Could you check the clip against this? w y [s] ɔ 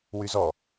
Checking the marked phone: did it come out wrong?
yes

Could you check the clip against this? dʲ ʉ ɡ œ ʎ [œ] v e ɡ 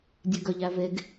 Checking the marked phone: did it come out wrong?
yes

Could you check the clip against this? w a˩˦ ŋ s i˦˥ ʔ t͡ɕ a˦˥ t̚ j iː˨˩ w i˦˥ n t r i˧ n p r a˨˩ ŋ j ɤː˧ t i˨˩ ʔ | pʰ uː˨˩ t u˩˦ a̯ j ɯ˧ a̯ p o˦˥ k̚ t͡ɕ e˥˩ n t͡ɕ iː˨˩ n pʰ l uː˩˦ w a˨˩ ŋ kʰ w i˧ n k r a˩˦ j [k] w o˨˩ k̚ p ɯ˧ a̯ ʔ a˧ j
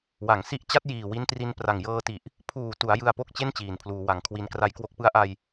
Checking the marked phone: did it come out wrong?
no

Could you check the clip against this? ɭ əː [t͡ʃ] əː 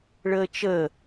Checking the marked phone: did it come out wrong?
no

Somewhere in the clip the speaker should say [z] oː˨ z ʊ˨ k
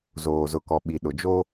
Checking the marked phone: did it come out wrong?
no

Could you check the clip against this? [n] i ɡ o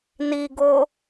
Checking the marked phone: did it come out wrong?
no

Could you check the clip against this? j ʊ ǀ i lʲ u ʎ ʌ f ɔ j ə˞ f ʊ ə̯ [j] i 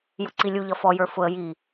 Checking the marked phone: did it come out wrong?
no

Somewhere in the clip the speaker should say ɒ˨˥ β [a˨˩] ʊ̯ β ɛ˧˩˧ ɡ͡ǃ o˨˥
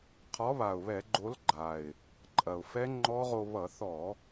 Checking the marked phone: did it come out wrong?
no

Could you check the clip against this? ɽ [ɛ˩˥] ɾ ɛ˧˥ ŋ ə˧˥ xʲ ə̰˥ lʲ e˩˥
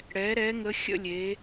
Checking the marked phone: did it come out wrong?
no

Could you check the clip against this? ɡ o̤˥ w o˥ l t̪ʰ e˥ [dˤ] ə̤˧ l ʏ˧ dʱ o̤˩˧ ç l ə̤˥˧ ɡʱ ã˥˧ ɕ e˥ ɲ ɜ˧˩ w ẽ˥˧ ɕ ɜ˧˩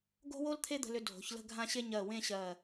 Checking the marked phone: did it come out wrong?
yes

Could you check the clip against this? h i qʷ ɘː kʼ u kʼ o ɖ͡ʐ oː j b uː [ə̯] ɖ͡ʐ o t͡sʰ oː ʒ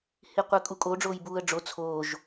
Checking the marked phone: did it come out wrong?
no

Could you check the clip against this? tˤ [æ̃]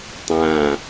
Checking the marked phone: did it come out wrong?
yes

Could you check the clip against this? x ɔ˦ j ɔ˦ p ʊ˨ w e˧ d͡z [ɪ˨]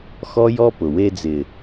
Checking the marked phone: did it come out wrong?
no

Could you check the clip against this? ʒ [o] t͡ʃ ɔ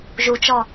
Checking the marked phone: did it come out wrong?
yes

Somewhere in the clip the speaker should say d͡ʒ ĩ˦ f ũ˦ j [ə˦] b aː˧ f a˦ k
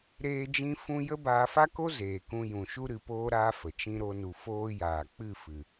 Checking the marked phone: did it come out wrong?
no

